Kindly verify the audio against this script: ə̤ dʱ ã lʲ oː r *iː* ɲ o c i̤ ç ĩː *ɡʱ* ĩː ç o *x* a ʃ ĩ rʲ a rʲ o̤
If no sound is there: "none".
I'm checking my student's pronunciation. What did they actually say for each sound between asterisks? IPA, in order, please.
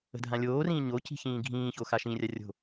ĩː, ɡʱ, x

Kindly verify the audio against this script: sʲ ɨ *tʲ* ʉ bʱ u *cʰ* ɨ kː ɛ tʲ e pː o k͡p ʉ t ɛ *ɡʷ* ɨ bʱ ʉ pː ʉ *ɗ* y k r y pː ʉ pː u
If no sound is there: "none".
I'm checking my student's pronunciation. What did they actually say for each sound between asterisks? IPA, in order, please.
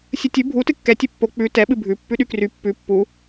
tʲ, t, ɓ, ɗ

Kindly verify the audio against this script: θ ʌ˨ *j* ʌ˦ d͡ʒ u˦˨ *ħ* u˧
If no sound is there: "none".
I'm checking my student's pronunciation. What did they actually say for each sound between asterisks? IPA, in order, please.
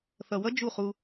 w, χ

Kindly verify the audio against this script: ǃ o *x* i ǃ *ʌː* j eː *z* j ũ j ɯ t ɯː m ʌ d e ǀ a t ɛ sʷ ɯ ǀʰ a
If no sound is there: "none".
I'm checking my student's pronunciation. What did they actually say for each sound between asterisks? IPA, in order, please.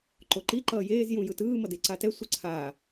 ǃ, ʌː, z

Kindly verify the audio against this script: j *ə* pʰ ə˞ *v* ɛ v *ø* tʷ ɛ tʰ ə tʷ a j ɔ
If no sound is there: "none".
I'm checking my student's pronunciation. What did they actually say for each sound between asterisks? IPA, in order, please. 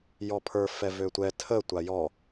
ɔ, f, ø

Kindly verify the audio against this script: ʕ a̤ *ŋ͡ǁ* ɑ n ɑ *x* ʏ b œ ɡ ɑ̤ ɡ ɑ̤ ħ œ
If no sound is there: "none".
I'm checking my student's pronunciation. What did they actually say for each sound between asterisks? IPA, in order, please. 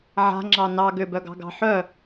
ŋ͡ǁ, ɡ

